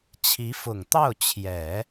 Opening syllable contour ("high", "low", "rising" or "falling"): rising